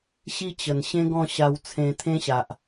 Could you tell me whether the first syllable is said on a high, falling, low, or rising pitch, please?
high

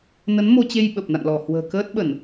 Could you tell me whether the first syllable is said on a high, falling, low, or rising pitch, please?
rising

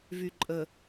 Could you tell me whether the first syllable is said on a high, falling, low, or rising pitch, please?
low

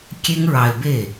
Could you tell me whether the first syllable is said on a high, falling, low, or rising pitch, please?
high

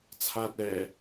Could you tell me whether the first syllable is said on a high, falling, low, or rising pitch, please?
low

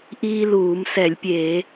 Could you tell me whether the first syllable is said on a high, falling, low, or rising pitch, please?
high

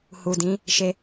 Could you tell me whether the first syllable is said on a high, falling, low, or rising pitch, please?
low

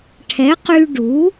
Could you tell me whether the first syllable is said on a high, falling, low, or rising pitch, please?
rising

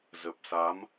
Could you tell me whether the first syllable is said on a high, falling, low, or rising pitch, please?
low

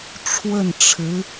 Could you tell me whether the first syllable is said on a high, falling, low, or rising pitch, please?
falling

